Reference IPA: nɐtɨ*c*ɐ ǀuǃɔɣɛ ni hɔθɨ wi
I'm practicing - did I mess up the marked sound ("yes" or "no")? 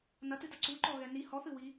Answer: yes